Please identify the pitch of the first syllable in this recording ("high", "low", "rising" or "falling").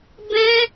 high